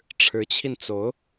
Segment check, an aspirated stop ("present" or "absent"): present